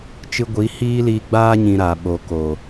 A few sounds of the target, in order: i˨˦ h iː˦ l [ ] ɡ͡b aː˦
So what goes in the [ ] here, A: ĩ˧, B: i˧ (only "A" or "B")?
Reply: B